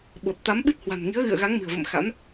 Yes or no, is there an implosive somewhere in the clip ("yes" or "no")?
yes